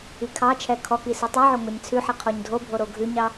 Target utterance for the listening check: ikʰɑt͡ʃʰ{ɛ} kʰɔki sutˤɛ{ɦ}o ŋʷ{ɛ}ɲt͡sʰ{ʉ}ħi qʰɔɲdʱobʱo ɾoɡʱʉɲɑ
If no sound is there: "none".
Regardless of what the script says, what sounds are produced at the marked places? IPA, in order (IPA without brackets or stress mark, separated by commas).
ɛ, ʕ, ɛ, ʉ